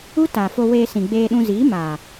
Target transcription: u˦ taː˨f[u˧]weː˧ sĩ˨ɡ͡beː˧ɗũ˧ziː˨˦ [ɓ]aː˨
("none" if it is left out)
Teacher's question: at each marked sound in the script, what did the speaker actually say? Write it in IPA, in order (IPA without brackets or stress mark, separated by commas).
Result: o˧, m